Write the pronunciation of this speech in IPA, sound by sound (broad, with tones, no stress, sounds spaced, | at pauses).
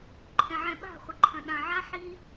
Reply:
ǃʰ ɛ̃˨ ʕ ɛ̃˨ ɓ a̤˦˨ χʷ ə˨ ǃʰ ɐ̃˨ ɗ ã˨ ʕ a˦ ħ i˦